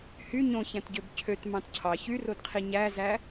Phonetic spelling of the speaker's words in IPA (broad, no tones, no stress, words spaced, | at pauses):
hy ɲõçæ̃tɟøb cʰøt mɑ̃tcʰɑ çyrodqʰi ɲæzæ